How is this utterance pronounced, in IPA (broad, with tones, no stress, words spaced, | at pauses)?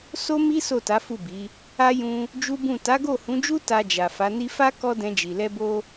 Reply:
so˦ mi˦ so˦˨ta˨˦fu˦˨bi˨˦ | a˦ jũ˧ | d͡ʒu˦bũ˦˨ ta˨˦ɡo˦˨hũ˨˦d͡ʒu˦ ta˧d͡ʒa˨ fa˨˦ni˦ fa˦ kɔ˦dɛ̃˧d͡ʒi˨ lɛ˧bo˧